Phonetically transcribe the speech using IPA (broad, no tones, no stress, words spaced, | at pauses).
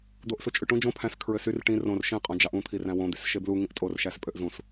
d̪oʔsut͡ʃʼyʈũ d͡ʒõ pʰæ̃s kʰɹøsyr ʈĩ rõr ʃĩ qʼõd͡ʒɑʔũ t̪ʰiræ̃wõ d̪ysʃeblu ŋĩʔtʼor ʃæspʼøʔzũs